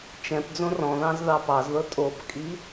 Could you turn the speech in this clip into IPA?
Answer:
t͡ʃ ɛ̃ p d͡z õ r ɔ̃ ð ɑ̃ z ð ɑ p ɑ z ð ɤ tʼ o p kʼ i

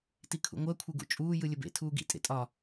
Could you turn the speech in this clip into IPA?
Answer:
t i kʰ ṵ ŋʷ ɜ kʷʰ e ɡ ṵ t͡ʃʼ uː j ɯ lʲ ə b ḛ tʰ uː ɡ ḭ tʼ ḛ tʼ ɒ

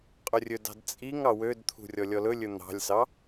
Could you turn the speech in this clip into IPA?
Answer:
qʼ ɵ rʲ ɵ d ɑ̤ d t͡sʼ i ŋ ɑ w ø d t̪ʰ ṳ rʲ ɔ lʲ ɔ l ɵ lʲ ɵ n̪ ɑ̤ lʲ s ɑ

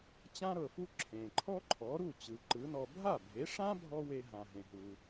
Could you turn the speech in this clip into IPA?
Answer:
t͡ɕ ã˥ ɾ ɤ˩ f u˥ ǁʰ ẽ˩ ǃʰ ɔ˥ ǃʰ ɔ˩˥ ɾ u˥˩ t͡ɕ ɯ˩ ǃ ɯ˩˥ n ɔ˧ bʱ a˥˩ bʱ e˩˥ ʂ ã˥ bʱ ɔ˥ w e˧ ɦ ã˩ ɦ ẽ˩ ɦ u˩

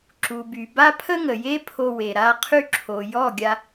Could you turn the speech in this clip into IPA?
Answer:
ǁ u˨ b y˨ b a˦ pʰ ə˦ ŋ ə˨ j e˦ pʰ o˧ w e˨ ɾ a˧ qʰ y˧ ǁʰ o˨ j ɔ˦˨ ɡʲ a˧

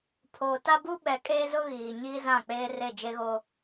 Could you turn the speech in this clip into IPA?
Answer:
pʰ oː˨ t a˦ b u˦ ɓ ɛ˨ kʼ eː˦ z ʊ˦ ɣ iː˨ ɲ iː˦ z ã˦˨ k͡p eː˦ r e˦˨ d͡ʒ e˦ ɣ o˦

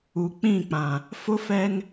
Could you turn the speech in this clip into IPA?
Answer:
u˨ k͡p ĩ˦˨ k͡p ã˨ | f ʊ˦ f ɛ˦ ŋ

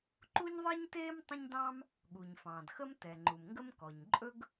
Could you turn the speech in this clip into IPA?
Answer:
ǃ u˥ ɲ ðˤ ɛ˥ ɲ t eː˥ m tˤ ə̃˥ ɲ d ɑ̃ː˥ m | ɠ u˩ ɲ f ɑ̃ː˩ d x ə˥ m t ɛ˩ ŋ͡ǃ u˩ m ŋ ɡ ə˥ m k ɔ˩ ɲ ǃʼ ɵ˥ ɡ

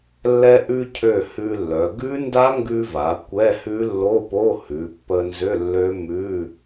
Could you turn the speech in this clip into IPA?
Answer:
lː ɛ˧ ʔ ʉ˧ cʰ ø˧˩ h ʉ˧ lː œ˩˧ ɡ ʉ˦˥ n d a˦˥ ŋ ɡ ʉ˧ v a˩˧ kʷ ɛ˧˥˧ h ʉ˦˥ lː o˧˥˧ p o˧˥˧ h ʉ˩˧ pː ə˧ n z ʏ˧˥˧ lː ø˦˥ m ʉ˧˥˧

